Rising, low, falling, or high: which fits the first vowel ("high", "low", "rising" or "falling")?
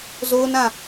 high